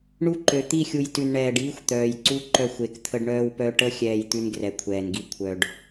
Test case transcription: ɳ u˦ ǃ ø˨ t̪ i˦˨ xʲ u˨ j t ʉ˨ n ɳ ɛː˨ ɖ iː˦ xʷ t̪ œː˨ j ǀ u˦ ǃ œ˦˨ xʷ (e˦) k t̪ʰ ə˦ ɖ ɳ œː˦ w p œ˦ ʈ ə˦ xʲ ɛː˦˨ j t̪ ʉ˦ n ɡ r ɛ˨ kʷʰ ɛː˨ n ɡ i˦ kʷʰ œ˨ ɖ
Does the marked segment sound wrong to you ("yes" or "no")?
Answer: yes